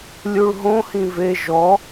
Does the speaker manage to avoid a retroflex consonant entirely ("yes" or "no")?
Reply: no